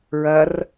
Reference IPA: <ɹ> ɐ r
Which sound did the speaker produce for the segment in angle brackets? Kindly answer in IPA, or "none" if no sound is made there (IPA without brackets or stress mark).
ɹ